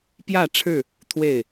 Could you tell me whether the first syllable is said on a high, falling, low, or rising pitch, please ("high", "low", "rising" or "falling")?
falling